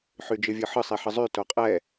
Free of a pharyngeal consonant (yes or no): no